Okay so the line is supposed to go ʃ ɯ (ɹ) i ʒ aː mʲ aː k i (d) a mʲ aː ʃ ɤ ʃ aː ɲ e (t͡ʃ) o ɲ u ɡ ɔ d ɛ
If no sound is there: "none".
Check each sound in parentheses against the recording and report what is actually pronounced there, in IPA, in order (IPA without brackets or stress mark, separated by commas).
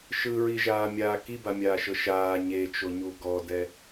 ɹ, b, t͡ʃ